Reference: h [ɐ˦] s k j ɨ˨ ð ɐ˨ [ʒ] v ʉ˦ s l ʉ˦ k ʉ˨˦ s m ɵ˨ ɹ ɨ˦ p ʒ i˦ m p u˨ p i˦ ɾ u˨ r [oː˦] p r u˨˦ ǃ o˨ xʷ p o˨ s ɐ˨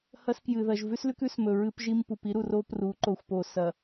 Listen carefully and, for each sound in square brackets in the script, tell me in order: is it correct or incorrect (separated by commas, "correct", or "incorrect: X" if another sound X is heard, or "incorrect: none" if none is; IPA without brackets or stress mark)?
correct, correct, incorrect: o˦